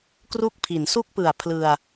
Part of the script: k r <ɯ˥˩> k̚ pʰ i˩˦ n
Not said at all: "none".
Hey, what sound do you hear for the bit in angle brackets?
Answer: u˥˩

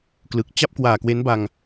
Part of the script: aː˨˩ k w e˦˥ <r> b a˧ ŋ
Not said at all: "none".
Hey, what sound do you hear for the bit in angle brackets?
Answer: n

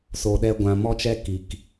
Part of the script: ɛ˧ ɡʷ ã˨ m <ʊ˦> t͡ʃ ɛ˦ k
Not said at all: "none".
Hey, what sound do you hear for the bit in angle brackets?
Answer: ɔ˦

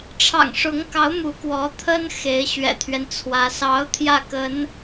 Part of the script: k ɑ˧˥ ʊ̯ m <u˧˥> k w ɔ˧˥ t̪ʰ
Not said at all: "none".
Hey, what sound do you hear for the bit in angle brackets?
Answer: u˧˥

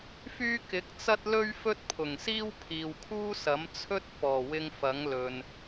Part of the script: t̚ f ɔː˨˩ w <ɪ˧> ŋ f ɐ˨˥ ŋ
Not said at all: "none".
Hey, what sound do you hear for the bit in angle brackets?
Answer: ɪ˧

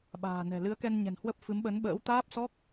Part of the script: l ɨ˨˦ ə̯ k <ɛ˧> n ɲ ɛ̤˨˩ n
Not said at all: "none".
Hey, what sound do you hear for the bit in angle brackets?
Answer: ɛ˧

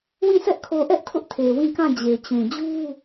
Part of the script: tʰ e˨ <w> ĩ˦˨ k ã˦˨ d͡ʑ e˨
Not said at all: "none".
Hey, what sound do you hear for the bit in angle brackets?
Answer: w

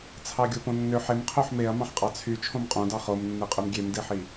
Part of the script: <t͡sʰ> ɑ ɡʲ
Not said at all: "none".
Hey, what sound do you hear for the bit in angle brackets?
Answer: t͡sʰ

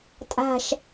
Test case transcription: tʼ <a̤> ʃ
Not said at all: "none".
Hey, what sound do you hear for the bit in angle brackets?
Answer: a̤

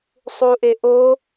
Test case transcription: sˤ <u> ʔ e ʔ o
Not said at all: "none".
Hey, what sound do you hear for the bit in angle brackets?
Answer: u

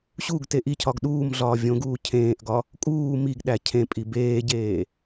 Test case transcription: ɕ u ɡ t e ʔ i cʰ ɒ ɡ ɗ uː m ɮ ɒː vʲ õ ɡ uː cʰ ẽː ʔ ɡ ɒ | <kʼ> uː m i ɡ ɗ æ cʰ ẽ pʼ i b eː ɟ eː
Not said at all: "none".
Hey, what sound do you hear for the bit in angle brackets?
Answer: kʼ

